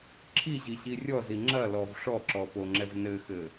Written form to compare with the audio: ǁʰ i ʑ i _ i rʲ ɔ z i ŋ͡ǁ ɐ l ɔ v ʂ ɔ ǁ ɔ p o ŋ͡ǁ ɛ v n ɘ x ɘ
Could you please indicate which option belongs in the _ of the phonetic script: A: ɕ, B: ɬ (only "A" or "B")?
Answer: A